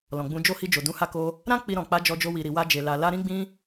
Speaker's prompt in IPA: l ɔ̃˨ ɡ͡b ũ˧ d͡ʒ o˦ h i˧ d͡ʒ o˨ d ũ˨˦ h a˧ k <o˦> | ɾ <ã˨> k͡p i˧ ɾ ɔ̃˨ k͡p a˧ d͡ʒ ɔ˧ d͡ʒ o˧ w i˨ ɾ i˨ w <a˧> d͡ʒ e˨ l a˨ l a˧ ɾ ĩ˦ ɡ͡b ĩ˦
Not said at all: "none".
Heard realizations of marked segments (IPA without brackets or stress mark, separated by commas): o˧, ã˦, a˧